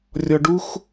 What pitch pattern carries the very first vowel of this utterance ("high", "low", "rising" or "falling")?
low